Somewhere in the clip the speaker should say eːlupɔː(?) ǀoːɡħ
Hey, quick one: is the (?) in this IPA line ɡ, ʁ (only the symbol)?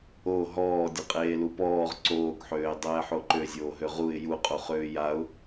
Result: ʁ